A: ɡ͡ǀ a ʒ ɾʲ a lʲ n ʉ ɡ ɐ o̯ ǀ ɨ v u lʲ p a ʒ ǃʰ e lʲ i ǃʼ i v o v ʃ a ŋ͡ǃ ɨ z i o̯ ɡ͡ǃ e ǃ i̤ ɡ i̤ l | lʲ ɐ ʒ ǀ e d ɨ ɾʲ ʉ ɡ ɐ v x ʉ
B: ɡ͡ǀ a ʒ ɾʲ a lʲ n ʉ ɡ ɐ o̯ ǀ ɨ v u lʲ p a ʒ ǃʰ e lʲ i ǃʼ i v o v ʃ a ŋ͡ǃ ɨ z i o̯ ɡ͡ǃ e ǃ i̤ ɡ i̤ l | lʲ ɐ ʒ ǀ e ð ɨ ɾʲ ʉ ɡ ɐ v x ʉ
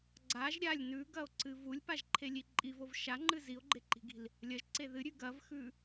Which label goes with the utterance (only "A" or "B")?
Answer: B